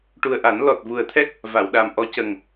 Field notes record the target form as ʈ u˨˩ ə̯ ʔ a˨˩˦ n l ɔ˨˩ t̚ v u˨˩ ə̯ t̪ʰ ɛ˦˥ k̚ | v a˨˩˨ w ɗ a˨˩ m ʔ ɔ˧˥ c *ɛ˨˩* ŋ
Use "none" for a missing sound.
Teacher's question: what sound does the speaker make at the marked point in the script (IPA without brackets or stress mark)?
ə˨˩